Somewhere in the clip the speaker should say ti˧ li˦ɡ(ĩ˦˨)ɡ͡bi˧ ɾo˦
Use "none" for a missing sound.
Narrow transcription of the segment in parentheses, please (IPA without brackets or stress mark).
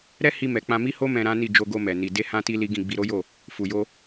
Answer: ĩ˦˨